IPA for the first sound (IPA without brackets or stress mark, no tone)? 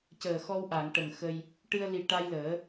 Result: c